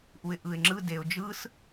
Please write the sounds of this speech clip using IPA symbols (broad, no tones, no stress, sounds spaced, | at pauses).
ʔ u ɪ̯ ʔ ɯ ɪ̯ ŋ͡ǁ ɯ d e ʊ̯ d͡ʒ ɯ s